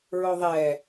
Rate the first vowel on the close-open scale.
mid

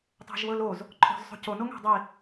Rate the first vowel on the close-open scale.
open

